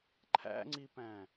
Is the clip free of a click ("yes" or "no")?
no